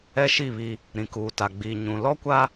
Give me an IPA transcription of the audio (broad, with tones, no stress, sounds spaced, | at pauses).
ɛ˦ ʃ i˦˨ β i˦ | ɾ ĩ˨ k uː˨ t a˨ ɡ͡b iː˨ ɲ ũ˨ l ɔ˦ kʷ a˦